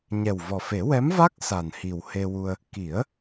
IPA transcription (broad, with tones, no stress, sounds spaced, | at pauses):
ɲ ɛ˨˩ w v ɔ˨˩ f e˨˩˦ w ɛ˧˥ m v a˦˥ k̚ s a˨˩ n h i˨˩ w h e˧ w u˧ ə̯ | k i˨˩˦ ə̯